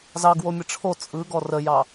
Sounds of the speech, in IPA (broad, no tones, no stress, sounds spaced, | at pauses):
z ɑ ɡ w o mʲ ə ʈ͡ʂʰ o t͡sʼ ɯ ɡ ɔ r ə j ɑ